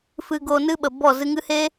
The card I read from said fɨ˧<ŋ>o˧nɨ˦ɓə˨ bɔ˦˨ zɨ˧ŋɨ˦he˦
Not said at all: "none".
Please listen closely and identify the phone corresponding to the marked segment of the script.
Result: ɡ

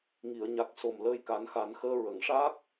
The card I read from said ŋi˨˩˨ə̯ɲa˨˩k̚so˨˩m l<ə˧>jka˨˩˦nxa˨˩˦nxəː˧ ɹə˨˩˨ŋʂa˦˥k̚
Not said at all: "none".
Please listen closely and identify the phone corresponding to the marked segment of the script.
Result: əː˧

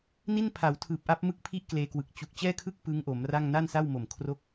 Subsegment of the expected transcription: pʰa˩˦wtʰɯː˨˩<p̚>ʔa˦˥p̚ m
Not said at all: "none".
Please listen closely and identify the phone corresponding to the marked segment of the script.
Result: p̚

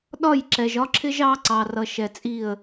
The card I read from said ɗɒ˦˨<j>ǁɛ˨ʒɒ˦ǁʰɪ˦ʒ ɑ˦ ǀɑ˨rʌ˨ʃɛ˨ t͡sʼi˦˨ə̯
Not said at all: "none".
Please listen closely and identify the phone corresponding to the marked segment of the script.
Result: j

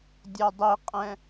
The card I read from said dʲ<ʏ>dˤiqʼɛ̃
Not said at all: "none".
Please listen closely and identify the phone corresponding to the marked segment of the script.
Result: ɛ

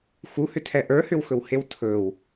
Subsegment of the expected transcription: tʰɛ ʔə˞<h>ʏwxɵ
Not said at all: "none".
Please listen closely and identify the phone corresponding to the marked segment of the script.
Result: h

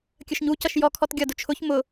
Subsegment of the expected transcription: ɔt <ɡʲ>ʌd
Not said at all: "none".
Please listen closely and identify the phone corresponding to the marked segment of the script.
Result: ɡʲ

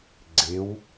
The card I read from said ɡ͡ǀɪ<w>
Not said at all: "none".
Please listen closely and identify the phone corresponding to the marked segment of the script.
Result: w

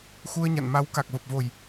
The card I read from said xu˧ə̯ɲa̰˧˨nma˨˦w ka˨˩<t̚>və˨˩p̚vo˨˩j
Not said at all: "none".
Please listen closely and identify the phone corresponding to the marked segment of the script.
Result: k̚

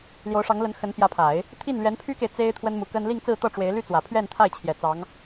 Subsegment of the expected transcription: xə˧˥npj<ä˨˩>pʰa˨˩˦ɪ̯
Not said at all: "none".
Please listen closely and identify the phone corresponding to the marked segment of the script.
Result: ä˧˥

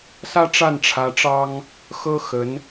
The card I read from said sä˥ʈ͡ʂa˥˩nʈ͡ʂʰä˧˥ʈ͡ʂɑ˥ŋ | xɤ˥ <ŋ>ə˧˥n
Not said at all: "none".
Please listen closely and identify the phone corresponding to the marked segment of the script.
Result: x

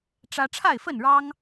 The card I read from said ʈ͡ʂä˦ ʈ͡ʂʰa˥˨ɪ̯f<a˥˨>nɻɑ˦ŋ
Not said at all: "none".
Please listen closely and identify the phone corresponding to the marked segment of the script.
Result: ə˥˨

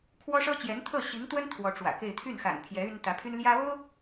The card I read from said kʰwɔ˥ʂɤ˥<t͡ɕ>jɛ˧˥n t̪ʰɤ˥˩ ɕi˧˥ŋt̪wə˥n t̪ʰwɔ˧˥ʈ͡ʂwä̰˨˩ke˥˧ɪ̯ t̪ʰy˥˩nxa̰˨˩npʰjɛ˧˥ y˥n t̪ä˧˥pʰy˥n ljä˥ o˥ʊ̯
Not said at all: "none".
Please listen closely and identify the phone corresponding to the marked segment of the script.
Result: t͡ɕ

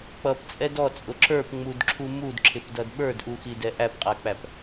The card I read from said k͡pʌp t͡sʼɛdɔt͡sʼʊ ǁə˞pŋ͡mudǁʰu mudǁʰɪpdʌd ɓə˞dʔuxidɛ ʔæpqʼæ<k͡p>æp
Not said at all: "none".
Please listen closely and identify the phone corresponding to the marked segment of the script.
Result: k͡p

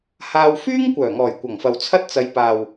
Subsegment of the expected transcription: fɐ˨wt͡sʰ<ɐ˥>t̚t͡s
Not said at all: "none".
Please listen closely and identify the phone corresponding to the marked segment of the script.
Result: ɐ˥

